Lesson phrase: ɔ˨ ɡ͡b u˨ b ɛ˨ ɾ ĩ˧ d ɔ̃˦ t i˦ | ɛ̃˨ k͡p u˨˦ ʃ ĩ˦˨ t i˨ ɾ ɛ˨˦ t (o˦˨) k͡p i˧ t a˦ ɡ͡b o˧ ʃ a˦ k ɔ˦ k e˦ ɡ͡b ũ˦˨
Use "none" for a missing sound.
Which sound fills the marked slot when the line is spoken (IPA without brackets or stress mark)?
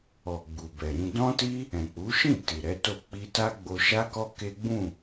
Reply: o˦˨